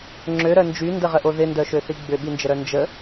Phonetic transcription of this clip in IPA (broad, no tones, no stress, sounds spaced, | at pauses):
ŋ͡ǁ ø ɾ œ n d͡ʒ y n d ə ʁ ə ʔ o ð ɪ n d œ ʃ ø θ i ɡ͡b ʏ ɓ i n d͡ʒ ə ɾ œ n d͡ʒ ə